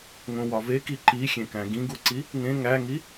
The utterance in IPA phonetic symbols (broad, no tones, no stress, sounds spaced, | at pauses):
ŋ õ w ɒ v e k i ǃ i xʲ ẽ k æ̃ ɡ ĩ ɡ u ǀ i | ŋ ẽ ŋ æ ŋ i